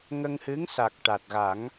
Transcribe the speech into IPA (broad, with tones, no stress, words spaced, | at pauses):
ŋə˧ŋhɨ˧˥ŋsa˨˩k̚ ʈa˨˩t̚ɣa˨˩˦ŋ